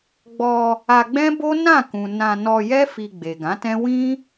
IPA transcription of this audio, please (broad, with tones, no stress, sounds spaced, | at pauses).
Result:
ɡ͡b ɔ˧ | a˧ ɡ͡b ɛ̃˦ b o˦ n ã˦˨ k ũ˨ n ã˧ n ɔ˧ j ɛ˦ f i˧ ɡ͡b e˨ ɡ ã˨˦ t ɛ̃˦ w ĩ˦